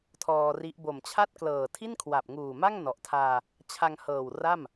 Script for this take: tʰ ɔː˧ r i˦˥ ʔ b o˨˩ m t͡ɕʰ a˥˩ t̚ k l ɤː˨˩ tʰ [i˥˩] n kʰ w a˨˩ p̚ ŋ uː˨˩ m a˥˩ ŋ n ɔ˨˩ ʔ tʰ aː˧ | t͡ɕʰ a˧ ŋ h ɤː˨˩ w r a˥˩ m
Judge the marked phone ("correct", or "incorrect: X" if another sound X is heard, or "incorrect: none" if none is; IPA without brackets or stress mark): correct